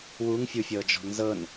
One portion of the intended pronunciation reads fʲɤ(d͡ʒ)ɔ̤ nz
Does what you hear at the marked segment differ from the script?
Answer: no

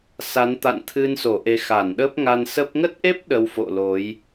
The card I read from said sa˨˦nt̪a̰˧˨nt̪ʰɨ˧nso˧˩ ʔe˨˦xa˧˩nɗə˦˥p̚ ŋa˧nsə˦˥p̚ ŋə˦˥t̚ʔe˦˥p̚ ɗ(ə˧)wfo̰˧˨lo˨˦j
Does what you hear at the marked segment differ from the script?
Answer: no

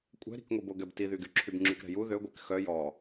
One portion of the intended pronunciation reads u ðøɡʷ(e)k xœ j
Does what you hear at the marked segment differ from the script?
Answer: no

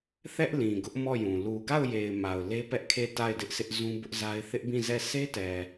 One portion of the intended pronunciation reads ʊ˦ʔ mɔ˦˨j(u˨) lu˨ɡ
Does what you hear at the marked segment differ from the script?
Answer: yes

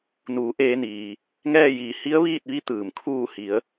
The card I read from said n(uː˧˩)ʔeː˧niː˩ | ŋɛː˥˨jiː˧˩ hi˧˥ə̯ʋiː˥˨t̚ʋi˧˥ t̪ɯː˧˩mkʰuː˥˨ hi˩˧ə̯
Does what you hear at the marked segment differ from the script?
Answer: yes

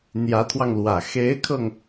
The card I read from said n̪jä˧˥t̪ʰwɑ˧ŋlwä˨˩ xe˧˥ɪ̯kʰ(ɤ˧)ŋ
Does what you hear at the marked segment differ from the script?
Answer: no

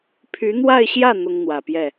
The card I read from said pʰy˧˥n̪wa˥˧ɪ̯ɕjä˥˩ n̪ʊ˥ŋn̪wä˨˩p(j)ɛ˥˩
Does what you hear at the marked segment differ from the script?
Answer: no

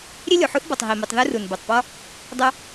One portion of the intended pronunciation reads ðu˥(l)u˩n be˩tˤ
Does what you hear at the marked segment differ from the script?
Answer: yes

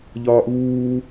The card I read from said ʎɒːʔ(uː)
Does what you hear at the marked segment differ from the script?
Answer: no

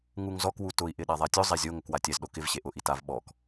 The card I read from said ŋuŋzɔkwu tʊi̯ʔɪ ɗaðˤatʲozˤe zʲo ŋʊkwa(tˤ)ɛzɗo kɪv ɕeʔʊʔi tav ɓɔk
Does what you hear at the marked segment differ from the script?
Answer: yes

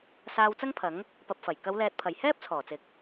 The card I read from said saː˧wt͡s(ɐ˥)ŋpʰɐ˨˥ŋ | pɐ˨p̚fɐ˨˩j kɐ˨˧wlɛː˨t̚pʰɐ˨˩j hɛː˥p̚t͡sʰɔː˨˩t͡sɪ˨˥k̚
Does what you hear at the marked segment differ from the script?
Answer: no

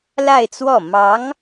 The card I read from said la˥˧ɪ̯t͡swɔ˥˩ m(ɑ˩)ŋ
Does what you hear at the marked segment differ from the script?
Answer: yes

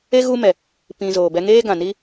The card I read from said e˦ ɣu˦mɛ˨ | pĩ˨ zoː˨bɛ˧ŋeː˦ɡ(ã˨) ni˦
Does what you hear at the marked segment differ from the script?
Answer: no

